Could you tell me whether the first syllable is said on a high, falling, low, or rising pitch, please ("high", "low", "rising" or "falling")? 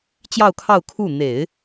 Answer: falling